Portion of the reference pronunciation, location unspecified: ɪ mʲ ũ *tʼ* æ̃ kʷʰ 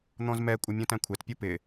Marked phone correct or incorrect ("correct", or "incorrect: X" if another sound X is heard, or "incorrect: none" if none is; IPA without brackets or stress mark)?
incorrect: t